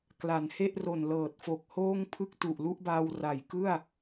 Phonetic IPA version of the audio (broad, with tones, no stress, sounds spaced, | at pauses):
k l a˩˦ n h e˥˩ ʔ r o˨˩ n l ɤː˨˩ t̚ f o˨˩ k̚ h oː˥˩ ŋ pʰ ɯ˥˩ k̚ t u˨˩ ʔ l u˦˥ ʔ b aː˧ w r a˨˩ j k ɯ˥˩ a̯